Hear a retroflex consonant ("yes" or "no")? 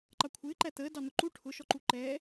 yes